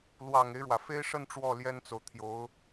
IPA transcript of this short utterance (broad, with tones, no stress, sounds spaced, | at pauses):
l w ɑ˨˩ ŋ e˦ ɪ̯ ɻ w ä˩ f e˥ ɪ̯ ʂ ə˥˧ n ʈ͡ʂ w ɔ˥˩ l j ɛ˥ n t͡s o˨ ʊ̯ t̪ʰ j o˧˥ ʊ̯